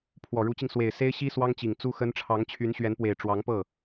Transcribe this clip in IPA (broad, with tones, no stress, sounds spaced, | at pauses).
pʰ w ɔ˨˩ ɻ u˧˥ t͡ɕ i˧ ŋ s w e˨˩ ɪ̯ s e˥ ɪ̯ ɕ i˥ s w ɑ˥ ŋ t͡ɕ i˨˩ ŋ t͡s u˥ x ə˥ n ʈ͡ʂʰ ɑ˧˥ ŋ t͡ɕʰ y˧˥ n ɕ ɥ ɛ˧˥ n p w e˨˩ ɪ̯ ʈ͡ʂ w ɑ˧˥ ŋ p ɤ˥˩